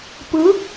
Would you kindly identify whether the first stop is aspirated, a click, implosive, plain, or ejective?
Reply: plain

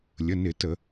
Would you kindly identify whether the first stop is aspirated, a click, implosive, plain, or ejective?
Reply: plain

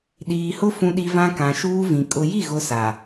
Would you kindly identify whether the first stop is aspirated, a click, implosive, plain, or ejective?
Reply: implosive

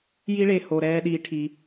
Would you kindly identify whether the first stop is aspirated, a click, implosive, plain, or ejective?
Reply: implosive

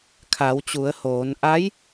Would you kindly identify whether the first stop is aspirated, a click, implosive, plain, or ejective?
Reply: aspirated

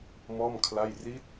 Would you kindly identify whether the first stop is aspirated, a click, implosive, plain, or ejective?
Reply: aspirated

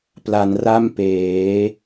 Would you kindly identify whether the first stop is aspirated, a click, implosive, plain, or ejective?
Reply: plain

